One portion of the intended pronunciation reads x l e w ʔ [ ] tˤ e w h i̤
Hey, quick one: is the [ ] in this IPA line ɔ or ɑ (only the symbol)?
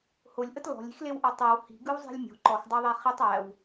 ɔ